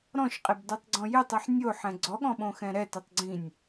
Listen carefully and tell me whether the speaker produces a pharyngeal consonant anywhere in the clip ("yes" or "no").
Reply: yes